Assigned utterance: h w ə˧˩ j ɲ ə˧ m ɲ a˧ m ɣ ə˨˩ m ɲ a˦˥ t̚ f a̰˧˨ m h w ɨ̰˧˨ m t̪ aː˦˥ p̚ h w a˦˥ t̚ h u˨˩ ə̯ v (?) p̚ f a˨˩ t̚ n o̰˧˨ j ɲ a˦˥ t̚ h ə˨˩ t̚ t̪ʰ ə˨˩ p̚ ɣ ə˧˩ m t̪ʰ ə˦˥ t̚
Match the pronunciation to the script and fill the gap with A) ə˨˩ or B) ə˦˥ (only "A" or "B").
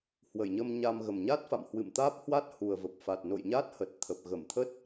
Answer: A